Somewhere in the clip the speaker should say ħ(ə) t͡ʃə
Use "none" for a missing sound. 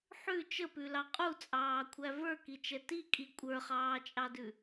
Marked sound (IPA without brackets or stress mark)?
ʉ